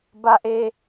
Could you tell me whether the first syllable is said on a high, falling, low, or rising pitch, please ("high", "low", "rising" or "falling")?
high